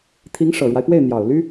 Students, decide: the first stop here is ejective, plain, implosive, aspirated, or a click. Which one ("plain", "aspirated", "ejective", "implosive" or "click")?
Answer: aspirated